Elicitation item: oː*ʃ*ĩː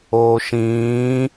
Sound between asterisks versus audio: correct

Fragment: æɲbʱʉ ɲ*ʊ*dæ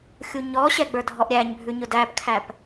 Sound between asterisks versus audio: correct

